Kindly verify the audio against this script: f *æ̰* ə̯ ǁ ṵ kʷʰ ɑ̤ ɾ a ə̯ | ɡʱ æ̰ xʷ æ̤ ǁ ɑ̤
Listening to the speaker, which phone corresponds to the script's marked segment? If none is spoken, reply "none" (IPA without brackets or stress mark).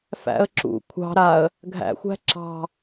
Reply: æ̰